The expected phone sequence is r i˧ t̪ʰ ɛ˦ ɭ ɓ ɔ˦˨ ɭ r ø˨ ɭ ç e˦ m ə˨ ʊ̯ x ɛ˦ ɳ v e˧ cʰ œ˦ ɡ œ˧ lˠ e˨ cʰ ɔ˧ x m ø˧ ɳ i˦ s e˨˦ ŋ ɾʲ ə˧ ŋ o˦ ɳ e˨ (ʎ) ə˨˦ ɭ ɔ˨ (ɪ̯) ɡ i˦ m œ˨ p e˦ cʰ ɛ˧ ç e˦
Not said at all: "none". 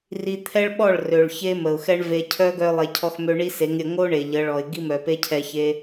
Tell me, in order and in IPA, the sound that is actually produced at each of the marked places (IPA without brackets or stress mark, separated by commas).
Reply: ʎ, ɪ̯